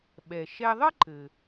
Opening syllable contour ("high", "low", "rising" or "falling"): low